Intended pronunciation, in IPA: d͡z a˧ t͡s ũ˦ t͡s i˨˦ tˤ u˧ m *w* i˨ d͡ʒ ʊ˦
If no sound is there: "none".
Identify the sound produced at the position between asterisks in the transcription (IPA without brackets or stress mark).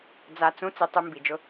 b